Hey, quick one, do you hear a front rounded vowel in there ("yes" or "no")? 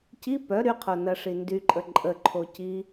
yes